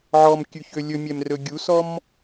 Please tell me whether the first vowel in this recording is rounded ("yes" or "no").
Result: yes